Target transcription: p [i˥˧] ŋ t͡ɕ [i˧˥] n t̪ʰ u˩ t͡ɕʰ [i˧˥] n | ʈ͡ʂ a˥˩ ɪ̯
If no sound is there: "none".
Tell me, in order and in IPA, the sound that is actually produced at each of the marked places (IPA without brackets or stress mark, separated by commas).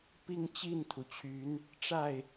i˥˧, i˥˩, y˧˥